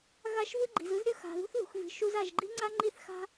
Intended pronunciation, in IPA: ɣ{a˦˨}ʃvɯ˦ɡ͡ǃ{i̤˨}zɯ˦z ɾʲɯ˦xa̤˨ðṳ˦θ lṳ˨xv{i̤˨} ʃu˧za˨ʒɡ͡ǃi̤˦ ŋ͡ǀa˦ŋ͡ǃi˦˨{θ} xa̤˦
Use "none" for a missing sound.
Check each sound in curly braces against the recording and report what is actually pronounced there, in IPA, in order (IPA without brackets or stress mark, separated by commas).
a˦˨, i̤˨, i̤˨, θ